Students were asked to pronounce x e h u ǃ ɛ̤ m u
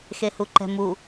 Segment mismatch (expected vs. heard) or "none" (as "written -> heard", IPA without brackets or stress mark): none